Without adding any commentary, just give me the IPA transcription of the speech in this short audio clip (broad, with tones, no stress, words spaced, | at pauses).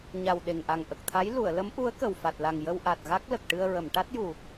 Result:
ɲa˨˩w ɗe˨˩ŋʔa˨˩ŋ ʔə˨˩k̚t̪ʰa˧˥j lu˨˩˨ə̯lə˧˥mʔu˧˥ə̯ kə˨˩wfa˨˩t̚la˨˩ŋ jə˧wʔa˨˩t̚ ɣa˦˥k̚lə˨˩k̚ ʈɨ˧ə̯ɹə˨˩˨m ʈa˦˥t̚ju˨˩